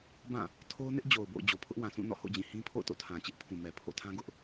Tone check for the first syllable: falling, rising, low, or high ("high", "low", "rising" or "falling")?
falling